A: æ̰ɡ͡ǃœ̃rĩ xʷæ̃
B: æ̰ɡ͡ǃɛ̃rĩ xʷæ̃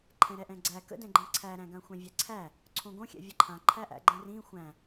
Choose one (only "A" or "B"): B